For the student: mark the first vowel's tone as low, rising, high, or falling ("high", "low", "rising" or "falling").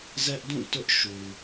high